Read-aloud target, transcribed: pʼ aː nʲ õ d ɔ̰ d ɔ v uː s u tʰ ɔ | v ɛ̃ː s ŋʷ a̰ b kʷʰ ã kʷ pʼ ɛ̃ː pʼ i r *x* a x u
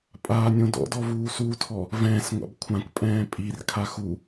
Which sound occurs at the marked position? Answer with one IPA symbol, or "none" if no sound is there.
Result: kʰ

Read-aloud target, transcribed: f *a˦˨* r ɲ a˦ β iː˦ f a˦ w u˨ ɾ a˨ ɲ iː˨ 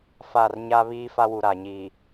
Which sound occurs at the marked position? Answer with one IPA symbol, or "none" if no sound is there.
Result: a˦˨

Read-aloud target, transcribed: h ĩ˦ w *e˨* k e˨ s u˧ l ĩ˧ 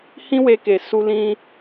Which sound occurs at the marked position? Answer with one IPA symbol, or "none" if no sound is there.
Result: e˧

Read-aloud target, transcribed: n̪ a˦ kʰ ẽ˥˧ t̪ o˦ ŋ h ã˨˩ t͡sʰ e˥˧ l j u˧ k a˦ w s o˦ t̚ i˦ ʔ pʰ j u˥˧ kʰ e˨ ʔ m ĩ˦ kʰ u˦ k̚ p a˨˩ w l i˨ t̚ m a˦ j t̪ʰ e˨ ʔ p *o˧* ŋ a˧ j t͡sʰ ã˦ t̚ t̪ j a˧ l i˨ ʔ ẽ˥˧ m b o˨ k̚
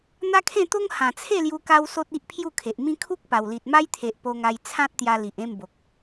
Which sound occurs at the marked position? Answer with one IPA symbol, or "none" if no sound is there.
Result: o˧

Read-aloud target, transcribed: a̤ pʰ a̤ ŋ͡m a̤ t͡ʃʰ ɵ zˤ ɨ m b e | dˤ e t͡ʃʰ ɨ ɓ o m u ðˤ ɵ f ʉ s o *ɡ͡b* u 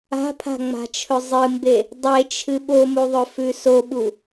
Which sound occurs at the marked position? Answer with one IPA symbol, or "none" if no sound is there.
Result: ɓ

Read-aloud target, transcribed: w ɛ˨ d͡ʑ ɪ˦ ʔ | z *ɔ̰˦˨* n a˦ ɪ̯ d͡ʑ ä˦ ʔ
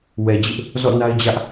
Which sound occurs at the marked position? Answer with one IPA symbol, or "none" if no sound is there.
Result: ɔ̰˦˨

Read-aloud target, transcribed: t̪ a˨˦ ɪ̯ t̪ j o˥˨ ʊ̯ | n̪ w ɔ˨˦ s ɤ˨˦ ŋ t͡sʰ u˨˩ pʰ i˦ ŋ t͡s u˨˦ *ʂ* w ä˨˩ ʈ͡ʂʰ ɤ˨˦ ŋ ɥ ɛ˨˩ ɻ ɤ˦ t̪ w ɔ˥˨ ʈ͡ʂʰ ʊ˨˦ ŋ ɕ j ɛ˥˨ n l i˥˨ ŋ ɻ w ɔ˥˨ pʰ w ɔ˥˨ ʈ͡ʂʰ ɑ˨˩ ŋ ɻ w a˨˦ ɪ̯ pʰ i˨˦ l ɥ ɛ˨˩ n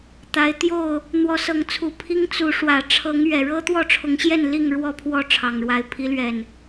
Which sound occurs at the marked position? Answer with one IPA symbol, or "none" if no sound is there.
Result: ʂ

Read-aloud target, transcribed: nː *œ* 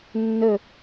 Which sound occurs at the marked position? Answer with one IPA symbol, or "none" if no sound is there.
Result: ɵ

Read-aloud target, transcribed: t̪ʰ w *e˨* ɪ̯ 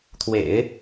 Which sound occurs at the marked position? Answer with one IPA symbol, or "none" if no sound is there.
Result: ḛ˨˩˦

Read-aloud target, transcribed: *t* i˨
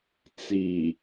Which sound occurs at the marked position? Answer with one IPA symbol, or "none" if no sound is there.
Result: t͡s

